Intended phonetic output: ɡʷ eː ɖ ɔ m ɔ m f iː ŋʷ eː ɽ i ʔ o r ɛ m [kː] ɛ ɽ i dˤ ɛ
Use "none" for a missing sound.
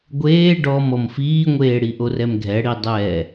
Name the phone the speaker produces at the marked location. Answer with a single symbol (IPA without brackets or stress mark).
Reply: ɡʱ